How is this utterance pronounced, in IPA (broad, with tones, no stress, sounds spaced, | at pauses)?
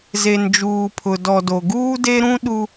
z e˨ n d͡ʒ uː˨ pʰ ʊ˨ d ɔ˨ d o˨ ɡ uː˦ d e˦ ɾ ũ˦ ɗ u˦